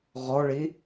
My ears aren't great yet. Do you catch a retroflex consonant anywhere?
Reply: yes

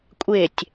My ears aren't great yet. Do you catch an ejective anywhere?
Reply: yes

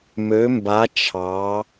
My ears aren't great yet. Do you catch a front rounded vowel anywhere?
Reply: yes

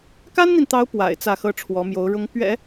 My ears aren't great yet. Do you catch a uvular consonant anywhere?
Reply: no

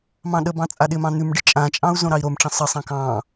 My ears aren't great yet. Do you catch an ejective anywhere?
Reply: yes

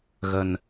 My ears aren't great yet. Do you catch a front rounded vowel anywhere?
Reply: no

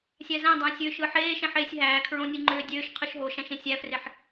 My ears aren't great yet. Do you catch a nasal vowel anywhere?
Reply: yes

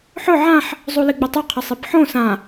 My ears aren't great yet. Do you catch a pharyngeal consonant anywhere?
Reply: yes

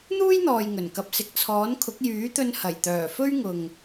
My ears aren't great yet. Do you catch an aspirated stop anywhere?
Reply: yes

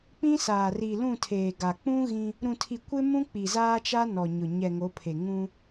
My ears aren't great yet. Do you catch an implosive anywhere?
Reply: no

